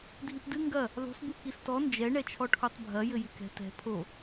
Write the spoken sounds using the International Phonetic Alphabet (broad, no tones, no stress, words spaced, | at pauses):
dʱipdɨ ŋɡɐ | ðˤṳs bukistɔ nd͡ʒɛ ɳɛt͡ʃʰɔʈʰotˤbʱɐ jɘjɨkɛ̤ tɛ̤ pʰo